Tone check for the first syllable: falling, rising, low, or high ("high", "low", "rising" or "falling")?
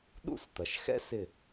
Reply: falling